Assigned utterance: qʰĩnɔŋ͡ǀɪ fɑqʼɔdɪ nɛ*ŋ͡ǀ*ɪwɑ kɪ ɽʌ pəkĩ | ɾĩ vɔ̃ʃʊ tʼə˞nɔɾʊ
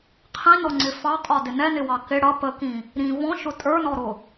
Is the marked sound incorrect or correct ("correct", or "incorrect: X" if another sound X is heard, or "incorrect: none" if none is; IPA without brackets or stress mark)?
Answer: incorrect: n